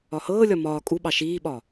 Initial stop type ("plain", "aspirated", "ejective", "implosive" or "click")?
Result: ejective